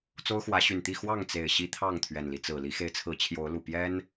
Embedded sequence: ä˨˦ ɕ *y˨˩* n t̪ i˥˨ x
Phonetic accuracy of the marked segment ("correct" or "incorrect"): correct